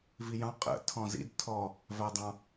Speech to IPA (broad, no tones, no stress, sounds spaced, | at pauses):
v i j ɑ̃ qʼ ə̰ tʰ ɔ̃ z ḭ d tʰ ɔ | v æ dˤ ɑ̃